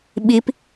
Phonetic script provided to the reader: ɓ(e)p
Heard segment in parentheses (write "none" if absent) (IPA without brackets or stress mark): i